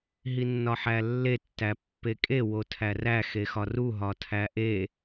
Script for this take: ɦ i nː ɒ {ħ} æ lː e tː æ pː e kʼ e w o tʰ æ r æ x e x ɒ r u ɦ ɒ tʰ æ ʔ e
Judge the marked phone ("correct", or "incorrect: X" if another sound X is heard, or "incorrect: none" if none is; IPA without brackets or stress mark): correct